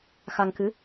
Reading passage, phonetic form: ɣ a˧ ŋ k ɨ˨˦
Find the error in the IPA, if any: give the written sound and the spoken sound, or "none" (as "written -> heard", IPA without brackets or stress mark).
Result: ɣ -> x